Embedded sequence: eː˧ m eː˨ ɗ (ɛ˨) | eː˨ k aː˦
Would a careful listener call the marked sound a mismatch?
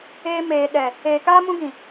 no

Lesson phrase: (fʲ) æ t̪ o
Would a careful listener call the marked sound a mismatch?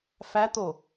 yes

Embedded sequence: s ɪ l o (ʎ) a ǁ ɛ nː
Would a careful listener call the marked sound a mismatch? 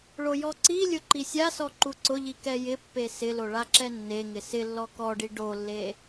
yes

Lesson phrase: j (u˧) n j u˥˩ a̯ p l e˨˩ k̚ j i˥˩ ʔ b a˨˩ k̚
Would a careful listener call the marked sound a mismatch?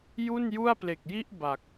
yes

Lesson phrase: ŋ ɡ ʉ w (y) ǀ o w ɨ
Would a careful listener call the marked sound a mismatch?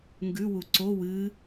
yes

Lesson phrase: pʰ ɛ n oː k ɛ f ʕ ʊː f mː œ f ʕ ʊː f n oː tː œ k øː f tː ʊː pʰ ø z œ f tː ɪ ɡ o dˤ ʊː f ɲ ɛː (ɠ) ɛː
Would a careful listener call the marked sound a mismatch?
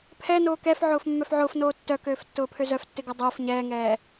yes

